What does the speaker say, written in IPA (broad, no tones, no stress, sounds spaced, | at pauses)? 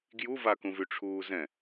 ɡ j u v a k ũ v y ʈ͡ʂʰ uː z ɛ̃